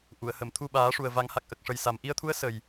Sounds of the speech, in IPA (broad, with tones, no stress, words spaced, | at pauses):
ʔu˨˩˨ə̯ hə˨˩˨mt̪ʰu˧ɓaː˨˩˦ʂu˨˩ə̯ va˨˩˦ŋha˨˩k̚ ʔə˨˩k̚ʂə˨˩j sa˨˩m ʔi˧ə̯t̪ʰu˧˥ə̯ sə˨˩j